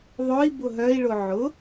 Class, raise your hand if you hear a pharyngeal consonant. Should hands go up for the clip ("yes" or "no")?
yes